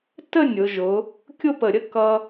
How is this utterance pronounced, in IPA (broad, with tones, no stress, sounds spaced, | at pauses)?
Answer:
t ə˥˧ nʲ ʊ˩˧ ʒ ʊ˩˧ | kʲ ʊ˥˧ p ə˧˩ ɾʲ ə˥˧ k ʌ˧